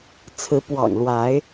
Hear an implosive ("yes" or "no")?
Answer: no